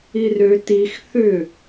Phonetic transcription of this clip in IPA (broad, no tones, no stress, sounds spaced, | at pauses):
i r ø t i x θ ʏ